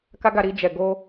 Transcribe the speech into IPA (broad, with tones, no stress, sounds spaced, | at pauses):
k a˦ ɡ a˧ ɾ i˧ d͡ʒ ɛ˨ ɡ o˧